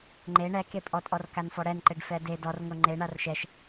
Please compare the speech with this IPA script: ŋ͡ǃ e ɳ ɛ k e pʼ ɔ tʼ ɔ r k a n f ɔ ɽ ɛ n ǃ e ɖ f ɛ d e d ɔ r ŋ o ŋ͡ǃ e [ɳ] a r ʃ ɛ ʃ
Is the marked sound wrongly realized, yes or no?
no